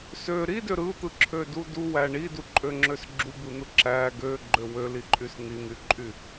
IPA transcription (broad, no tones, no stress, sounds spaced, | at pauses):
s ø ɾ i d ø ɾ ɯ t̪ ɯ ǁʰ ø d u d u w æ ɳ i d u ǃʼ ø ŋ͡ǁ ø s ɡ͡ǁ u b ɯ n̪ ɯ ǁ æ ɡ ø ɡ͡ǃ ø w ø l i ǃʼ y s n̪ i n̪ y ǃʼ y